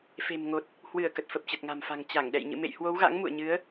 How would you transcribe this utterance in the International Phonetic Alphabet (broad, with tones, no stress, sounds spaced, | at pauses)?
f e̤˨˩ m ŋ o˨˩ t̚ | h w ɨ˧˩ ə̯ k ə˨˩ t̚ f ə˨˩ p̚ t͡ɕ ə˨˩ t̚ ŋ a̤˨˩ m f a̤˨˩ ŋ t͡ɕ a˧˩ ŋ ɗ ɛ̰˧˨ j ɲ ɨ̰˧˨ m ḛ˧˨ j h w o˨˦ w ɣ a̰˧˥ ŋ m ṵ˧˨ ə̯ ɲ ɨ˨˦ ə̯